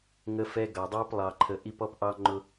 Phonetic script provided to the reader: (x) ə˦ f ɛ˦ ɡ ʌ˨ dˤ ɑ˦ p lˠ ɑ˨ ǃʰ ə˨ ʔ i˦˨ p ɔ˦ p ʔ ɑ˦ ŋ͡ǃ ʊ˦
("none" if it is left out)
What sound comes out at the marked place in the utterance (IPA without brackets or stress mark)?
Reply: ŋ